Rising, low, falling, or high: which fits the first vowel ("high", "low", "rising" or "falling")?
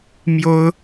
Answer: high